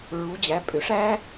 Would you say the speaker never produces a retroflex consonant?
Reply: no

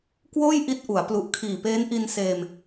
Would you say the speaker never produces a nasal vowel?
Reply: yes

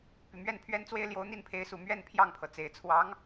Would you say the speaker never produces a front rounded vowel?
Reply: no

